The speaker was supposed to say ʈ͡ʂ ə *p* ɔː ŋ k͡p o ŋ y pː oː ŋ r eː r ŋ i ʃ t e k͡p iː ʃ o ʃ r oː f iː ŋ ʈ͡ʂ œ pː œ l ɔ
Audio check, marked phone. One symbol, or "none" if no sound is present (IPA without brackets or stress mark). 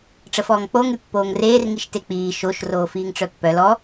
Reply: f